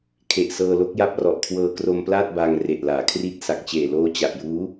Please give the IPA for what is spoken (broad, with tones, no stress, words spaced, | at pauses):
kʰe˨˩ʔsɤː˧lo˦˥k̚ ja˦˥p̚rɔ˨˩ʔkʰwɤː˧kro˧m plaː˥˩t̚baː˧ŋ re˨˩ʔlaː˩˦ kʰri˦˥t̚ sa˨˩k̚t͡ɕeː˨˩ loː˦˥t͡ɕa˨˩ʔ juː˦˥